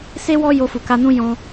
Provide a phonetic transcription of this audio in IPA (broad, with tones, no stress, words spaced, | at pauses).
se˦ wɔ˦ jo˧fu˨ka˧nũ˦ jɔ̃˧